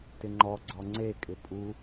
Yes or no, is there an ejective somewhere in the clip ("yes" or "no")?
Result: yes